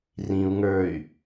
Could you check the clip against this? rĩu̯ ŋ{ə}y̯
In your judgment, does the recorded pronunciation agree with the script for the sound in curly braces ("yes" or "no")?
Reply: no